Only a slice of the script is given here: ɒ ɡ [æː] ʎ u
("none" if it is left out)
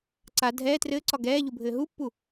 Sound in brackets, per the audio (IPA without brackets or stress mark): ɛː